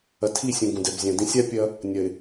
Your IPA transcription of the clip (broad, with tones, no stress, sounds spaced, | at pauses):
ɐ˨ tʰ i˦˨ sʲ ũ˨ ɡ ũ˨ d ɛ˨ b zʲ ã˨ d ĩ˨ sʲ a˦ pʲ ɐ˦ | nʲ ɐ˨ ɪ̯